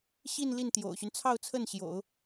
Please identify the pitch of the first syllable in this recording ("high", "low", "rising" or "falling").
falling